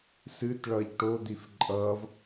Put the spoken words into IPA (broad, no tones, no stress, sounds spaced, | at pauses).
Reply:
s ɨ t ɭ ʌ ʎ ʈ o d̪ i f ǃʼ ʌ v